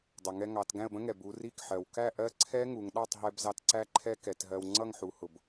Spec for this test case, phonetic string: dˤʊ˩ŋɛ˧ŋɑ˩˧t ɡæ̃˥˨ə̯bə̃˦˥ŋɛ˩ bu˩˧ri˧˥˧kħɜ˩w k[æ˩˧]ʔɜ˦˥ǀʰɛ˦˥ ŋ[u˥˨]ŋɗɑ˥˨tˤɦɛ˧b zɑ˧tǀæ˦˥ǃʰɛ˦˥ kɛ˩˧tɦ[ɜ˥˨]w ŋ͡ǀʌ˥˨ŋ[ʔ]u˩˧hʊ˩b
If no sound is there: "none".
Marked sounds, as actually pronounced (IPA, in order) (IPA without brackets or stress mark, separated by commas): æ˥˨, u˩˧, ɜ˧, ħ